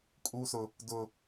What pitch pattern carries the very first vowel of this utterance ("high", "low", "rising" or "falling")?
high